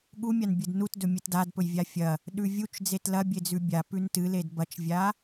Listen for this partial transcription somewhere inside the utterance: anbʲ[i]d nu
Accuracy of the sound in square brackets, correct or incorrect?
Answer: incorrect: ɨ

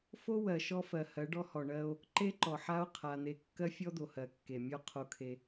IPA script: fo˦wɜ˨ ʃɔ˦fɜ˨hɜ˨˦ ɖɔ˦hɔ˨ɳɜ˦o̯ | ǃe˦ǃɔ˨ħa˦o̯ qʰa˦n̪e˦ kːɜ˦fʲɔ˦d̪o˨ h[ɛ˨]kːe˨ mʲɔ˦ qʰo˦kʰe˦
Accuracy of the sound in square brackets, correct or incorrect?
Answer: incorrect: ɜ˨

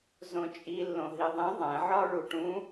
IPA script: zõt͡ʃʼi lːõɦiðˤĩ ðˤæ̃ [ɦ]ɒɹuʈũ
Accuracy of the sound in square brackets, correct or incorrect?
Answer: incorrect: ʕ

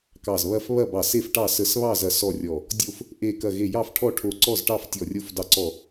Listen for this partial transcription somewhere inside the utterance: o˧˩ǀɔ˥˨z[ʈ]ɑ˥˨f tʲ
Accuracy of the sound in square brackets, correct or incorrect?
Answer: correct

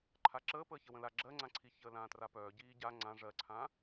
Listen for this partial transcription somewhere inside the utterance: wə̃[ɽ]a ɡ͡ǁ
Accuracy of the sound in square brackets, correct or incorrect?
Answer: incorrect: l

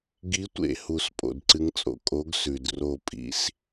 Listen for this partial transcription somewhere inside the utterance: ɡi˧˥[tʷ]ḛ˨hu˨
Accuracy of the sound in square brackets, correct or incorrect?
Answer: correct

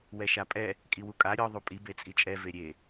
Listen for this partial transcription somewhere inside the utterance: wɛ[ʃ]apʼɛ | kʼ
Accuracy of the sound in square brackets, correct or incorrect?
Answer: correct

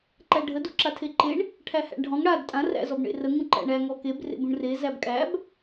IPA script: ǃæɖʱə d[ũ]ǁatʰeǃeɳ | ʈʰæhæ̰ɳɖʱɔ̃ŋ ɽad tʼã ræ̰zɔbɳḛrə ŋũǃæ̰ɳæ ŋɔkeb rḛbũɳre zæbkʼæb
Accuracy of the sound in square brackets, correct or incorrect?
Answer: incorrect: u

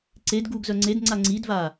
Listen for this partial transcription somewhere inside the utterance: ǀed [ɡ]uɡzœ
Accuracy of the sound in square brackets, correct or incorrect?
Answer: correct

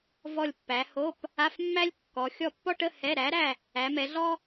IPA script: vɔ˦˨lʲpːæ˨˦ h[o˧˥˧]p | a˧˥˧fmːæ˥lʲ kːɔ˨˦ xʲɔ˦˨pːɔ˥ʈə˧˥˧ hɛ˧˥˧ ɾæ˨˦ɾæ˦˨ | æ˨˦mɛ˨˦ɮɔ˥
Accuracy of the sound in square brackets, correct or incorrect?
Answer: correct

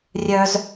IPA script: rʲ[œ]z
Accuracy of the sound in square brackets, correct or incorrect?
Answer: correct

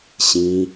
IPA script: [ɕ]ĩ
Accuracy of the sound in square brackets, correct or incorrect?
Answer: correct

